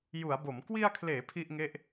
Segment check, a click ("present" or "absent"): absent